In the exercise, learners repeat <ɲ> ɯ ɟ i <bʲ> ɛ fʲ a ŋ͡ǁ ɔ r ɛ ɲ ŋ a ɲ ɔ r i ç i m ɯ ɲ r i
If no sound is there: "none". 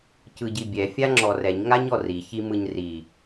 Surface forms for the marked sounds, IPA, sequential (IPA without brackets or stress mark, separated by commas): c, bʲ